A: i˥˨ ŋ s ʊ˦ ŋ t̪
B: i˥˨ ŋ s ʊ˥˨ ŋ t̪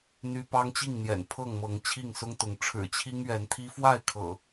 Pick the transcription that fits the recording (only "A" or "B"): A